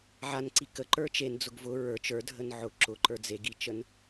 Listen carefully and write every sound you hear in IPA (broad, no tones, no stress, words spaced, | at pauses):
ʕanǀi kəǃə˞ t͡ʃend͡zʊɡ vʊ ɹə˞ t͡ʃə˞dʱən ʕʊ ǁʊǃə˞ d͡zeɡit͡ʃən